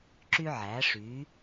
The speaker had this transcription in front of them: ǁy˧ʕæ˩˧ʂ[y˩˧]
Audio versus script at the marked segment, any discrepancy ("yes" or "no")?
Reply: no